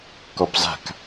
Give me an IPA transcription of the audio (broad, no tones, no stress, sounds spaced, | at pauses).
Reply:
k ɔ b z a̤ k